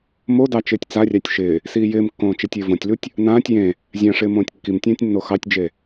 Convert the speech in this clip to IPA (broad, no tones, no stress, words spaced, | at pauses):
modɑ t͡ʃɪːtʲt͡sarʲɑtʲ ʃɪː | siːjɪːmkːõː t͡ʃetʲɪːvõtʲlutʲ | nãːtʲ jẽ | zʲãʂɪː mõːtʲkːimtʲãːtʲ nːoxɑtʲd͡ʒe